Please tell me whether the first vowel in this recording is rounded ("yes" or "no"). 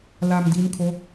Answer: no